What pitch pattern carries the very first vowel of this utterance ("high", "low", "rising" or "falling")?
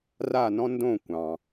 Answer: falling